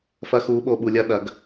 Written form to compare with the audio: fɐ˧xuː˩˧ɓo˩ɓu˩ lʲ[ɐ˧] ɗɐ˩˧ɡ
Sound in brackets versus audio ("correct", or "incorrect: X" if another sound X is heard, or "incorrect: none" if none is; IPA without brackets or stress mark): correct